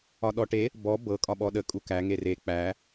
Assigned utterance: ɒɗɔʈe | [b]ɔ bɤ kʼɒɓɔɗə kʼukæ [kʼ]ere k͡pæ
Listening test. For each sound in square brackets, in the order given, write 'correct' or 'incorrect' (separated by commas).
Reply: correct, incorrect